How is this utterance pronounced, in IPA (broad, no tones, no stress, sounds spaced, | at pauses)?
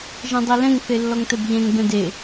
ʒ ɛ̃ dˤ ɛ l ɛ̃ ŋ θ e lː ɔ ŋ t ɛ b ʎ ɛ̃ ŋ b ɛ̃ d e